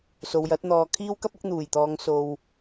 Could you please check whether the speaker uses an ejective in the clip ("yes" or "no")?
no